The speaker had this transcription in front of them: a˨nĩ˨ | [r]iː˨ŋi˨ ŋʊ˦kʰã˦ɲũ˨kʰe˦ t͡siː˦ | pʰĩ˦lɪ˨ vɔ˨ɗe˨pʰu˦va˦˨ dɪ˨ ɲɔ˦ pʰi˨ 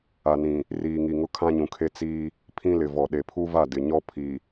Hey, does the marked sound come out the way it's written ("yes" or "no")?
yes